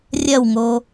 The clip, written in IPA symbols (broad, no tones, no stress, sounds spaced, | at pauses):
rʲ ɐ w ŋ o